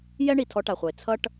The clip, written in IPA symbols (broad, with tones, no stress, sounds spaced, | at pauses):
j ɛ˦ ɳ i˨ tʰ ɔ˧ ʈ a˨ χʷ ʌ˨ e̯ t͡sʰ ʌ˦ ʈ